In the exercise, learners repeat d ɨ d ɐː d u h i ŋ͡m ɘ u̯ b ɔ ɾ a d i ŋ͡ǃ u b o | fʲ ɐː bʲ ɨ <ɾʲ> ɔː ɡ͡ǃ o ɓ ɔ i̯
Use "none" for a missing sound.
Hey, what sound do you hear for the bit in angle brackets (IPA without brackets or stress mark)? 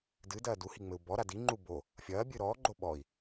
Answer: ɾ